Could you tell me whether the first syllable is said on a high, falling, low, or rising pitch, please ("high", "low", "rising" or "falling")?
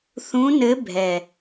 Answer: rising